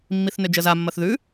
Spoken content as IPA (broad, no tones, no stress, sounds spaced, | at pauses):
mː i θ n ø d͡ʒ ə z a mː ɐ θ ð ʉ